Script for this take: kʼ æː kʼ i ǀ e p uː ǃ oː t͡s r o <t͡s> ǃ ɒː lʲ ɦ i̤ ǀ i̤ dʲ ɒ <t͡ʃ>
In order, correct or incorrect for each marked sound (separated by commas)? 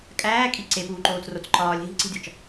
correct, correct